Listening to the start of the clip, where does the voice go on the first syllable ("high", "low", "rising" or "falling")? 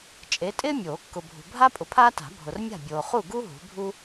rising